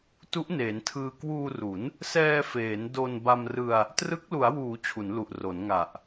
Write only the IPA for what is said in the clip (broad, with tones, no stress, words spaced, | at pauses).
tu˦˥ʔneː˩˦ntʰɯː˧ kwuː˧ru˩˦n | sɛː˧feː˩˦n do˧n ba˧mrɯ˧a̯ | trɯ˦˥k̚ lu˩˦a̯wuː˩˦ t͡ɕʰu˩˦nlu˨˩ʔro˩˦n ŋa˨˩ʔ